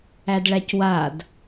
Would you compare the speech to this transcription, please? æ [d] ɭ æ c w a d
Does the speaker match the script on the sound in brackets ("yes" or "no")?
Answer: yes